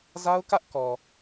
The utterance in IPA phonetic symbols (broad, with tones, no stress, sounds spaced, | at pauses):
z a˦ ʊ̯ k ä˦ ʔ k ɔ˨